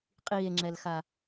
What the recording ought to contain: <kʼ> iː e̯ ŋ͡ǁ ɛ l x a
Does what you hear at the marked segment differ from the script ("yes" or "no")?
yes